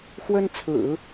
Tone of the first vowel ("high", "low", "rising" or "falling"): high